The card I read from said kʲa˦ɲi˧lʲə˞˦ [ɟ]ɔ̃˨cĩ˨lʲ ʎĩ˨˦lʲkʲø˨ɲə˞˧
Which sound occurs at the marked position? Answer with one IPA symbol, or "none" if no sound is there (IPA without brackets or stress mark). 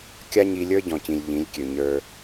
ɟ